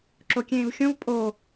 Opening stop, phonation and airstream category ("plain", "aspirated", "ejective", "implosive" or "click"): click